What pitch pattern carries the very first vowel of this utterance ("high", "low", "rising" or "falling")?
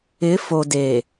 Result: rising